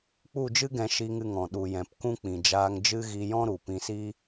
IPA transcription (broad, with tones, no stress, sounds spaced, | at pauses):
k͡p u˦˨ d͡ʒ ɨ˦ ɡ ɛ̃˧ ʃ i˧ ŋ ɨ˧ ŋ ɔ̃˨ ɗ u˨ j ɛ̃˨ p k ũ˦ k͡p ĩ˨ d͡ʒ aː˧ ŋ d͡ʒ ɨ˦ ɣ i˧ j ɔ̃˦ ɾ u˨ p ĩ˧ s i˦